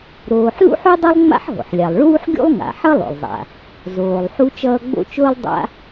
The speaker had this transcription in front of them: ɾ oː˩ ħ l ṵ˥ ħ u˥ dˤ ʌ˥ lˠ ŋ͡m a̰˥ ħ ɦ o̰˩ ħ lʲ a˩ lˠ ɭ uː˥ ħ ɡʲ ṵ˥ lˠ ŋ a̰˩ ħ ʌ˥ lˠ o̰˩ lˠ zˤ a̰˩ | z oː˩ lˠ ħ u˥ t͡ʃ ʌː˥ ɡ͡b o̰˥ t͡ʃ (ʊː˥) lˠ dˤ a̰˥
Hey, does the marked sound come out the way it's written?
yes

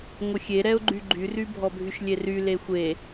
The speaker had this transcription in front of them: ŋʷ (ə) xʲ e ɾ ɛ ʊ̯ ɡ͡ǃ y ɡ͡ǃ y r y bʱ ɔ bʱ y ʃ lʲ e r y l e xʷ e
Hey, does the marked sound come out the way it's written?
yes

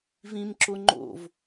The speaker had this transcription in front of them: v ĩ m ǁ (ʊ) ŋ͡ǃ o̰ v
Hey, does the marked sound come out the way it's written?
yes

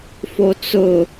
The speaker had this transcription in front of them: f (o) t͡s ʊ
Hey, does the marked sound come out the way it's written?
yes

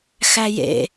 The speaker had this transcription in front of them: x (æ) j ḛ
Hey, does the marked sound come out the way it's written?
yes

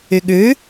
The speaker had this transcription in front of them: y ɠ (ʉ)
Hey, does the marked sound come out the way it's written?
yes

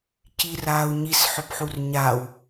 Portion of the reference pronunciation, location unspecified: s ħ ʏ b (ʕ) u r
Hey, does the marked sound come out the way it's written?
no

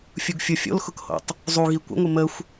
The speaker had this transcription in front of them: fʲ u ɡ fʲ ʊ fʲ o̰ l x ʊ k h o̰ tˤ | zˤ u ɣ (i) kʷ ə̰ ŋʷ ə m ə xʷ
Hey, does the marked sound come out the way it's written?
yes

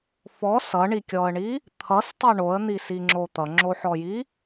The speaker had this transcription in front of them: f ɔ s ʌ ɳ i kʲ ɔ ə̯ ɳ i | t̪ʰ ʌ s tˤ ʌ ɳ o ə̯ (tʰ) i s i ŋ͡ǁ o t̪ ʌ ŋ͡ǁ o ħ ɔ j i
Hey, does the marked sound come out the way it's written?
no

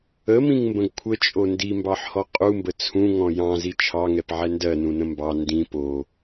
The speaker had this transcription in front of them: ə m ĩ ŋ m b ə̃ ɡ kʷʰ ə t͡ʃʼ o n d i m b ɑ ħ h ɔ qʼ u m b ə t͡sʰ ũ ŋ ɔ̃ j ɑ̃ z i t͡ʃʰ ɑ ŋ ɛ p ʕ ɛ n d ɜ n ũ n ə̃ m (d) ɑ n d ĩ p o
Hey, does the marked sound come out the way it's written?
no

